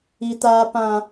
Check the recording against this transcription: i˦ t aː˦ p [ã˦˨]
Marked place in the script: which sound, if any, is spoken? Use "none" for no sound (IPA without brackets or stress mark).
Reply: ã˦